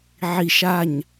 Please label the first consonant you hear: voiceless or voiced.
voiced